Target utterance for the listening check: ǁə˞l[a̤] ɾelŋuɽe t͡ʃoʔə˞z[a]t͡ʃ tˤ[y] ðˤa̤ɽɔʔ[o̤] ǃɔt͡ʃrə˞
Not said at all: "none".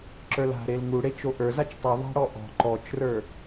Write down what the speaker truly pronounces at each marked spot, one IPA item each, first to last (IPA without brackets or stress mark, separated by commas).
a̤, a, ɨ, ɔ̤